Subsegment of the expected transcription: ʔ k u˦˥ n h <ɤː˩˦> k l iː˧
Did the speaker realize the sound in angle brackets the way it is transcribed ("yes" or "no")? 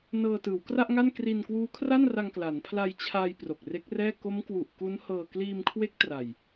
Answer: no